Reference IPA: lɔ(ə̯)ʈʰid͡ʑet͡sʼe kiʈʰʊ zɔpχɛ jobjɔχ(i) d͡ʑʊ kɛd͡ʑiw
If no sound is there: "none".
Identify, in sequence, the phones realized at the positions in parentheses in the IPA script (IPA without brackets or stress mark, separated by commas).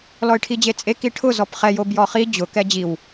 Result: ɪ̯, i